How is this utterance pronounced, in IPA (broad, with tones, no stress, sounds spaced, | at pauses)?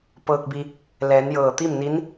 p ɤː˧ k̚ b i˧ | l ɛː˩˧ n j ɤː˧˩ t̪ i˥˨ m n i˧˥ n